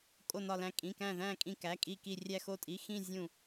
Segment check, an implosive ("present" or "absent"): absent